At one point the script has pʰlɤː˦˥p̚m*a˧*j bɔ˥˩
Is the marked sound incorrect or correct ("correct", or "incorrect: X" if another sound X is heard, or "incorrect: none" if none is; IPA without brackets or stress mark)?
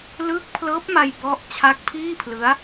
correct